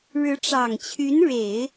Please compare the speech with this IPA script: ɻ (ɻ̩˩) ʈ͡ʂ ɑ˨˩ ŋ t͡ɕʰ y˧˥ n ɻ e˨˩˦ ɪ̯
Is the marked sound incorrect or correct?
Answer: incorrect